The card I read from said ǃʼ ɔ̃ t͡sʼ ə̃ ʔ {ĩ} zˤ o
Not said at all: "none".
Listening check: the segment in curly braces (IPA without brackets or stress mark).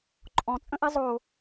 i